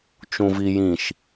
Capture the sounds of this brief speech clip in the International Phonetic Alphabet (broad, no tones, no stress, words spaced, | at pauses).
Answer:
t͡ʃũvijĩʃ